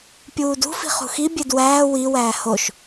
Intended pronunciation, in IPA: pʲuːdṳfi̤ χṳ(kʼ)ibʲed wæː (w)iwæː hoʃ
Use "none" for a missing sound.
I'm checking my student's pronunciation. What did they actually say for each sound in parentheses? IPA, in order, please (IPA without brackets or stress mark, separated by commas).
x, w